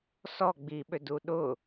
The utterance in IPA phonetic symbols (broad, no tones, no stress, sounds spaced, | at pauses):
s ɔ ɡ͡b i ɓ ø d u ɗ ʊ